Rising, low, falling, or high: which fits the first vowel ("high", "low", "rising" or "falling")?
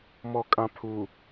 low